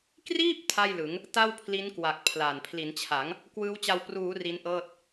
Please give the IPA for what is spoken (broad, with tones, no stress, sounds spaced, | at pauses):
k r iː˥˩ p̚ tʰ a˥˩ j l ɯ˩˦ ŋ | t a˥˩ w pʰ l i˦˥ n k w a˨˩ k̚ pʰ l a˨˩ n pʰ l i˩˦ n t͡ɕʰ a˩˦ ŋ | k w ɯː˦˥ w t͡ɕ a˧ w p r uː˩˦ r i˦˥ n ʔ ɤː˥˩ t̚